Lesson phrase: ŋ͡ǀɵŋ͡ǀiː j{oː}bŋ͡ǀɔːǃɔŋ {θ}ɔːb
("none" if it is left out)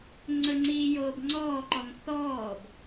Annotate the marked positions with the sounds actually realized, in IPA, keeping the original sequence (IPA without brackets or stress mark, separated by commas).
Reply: oː, θ